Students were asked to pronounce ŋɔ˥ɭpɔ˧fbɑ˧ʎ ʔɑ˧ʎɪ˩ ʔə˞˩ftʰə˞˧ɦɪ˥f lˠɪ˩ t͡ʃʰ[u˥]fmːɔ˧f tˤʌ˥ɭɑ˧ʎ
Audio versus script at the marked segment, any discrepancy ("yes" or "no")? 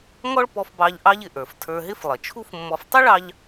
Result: no